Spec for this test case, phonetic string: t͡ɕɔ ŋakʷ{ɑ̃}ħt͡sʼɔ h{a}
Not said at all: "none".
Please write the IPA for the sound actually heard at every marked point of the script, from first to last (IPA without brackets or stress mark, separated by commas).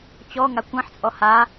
ɑ̃, a